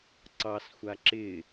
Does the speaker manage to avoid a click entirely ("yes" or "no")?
no